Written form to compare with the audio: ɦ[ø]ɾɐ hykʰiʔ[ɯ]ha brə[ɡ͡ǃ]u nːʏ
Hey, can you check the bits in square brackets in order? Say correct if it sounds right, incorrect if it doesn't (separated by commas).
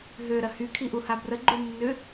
correct, incorrect, correct